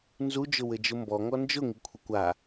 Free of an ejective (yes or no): yes